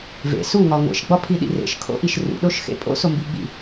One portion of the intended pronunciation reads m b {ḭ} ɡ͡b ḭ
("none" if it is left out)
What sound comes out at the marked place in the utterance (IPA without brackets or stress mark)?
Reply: i